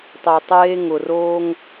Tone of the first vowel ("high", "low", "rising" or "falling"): low